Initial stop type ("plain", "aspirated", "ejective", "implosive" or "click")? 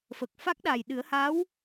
plain